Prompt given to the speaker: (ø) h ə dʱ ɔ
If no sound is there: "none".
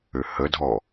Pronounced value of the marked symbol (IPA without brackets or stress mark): ø